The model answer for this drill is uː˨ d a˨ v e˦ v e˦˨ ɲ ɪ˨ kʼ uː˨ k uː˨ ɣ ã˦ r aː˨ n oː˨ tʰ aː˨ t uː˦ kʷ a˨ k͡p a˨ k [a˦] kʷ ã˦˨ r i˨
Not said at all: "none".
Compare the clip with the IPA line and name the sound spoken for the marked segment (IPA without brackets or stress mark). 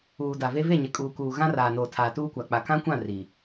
ã˦